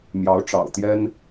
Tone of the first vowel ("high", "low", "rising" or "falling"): rising